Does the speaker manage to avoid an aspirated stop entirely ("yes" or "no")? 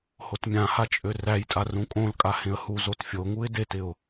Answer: yes